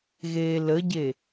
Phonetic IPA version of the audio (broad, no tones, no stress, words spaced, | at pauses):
ɣeːləɟe